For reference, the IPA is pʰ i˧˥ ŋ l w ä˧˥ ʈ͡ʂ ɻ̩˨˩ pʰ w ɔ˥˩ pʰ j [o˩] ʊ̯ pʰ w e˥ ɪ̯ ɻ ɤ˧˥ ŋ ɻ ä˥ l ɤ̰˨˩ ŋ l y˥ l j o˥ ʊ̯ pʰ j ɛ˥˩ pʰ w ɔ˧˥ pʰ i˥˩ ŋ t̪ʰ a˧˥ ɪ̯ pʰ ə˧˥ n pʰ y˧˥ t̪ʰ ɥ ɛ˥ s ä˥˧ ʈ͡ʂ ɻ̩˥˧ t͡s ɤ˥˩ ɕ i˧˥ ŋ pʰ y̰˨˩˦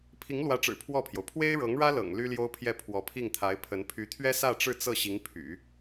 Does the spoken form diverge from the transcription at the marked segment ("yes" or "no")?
no